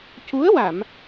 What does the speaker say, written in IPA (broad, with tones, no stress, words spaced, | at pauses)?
cu˧˥ə̯wa˨˩˨m